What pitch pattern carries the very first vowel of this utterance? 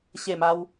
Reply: falling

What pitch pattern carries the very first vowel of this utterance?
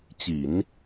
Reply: low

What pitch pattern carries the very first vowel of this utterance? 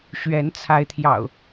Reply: rising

